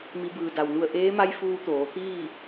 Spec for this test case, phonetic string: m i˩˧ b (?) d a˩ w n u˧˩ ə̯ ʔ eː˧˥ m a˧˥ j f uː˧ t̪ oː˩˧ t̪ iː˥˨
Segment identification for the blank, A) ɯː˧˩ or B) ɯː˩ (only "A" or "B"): B